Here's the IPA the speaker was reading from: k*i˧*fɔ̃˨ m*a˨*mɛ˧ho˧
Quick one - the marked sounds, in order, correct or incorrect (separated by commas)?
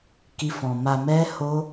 correct, correct